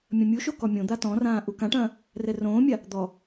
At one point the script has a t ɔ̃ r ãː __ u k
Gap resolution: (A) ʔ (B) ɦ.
A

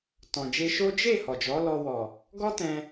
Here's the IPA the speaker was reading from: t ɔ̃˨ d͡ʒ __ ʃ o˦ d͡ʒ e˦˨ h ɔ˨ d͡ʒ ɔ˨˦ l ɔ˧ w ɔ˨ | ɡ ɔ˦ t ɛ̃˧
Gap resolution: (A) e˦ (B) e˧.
B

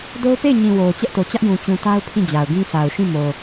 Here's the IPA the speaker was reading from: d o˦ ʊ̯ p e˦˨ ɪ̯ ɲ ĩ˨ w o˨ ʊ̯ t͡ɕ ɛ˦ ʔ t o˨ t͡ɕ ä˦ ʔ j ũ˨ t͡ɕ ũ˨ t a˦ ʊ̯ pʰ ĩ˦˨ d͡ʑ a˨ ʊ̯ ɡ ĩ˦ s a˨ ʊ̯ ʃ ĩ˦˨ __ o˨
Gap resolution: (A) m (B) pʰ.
A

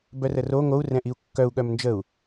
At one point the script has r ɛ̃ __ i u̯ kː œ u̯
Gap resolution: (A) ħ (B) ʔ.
B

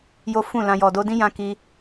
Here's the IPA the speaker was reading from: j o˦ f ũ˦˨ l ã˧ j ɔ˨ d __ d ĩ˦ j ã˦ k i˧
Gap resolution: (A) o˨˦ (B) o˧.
B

